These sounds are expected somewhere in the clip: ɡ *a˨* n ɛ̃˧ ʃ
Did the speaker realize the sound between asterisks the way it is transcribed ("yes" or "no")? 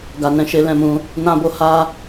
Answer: yes